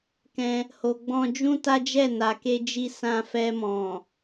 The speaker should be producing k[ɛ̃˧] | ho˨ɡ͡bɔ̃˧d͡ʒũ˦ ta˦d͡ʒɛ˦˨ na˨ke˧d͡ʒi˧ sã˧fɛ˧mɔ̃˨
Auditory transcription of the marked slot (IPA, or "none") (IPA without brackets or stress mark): ɛ̃˧